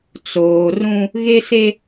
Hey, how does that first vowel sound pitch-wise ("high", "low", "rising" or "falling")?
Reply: low